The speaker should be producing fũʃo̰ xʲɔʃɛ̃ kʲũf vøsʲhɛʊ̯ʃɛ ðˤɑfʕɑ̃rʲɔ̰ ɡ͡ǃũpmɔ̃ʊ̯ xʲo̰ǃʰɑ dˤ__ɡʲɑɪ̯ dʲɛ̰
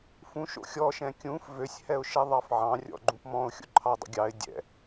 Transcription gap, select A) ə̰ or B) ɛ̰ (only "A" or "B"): A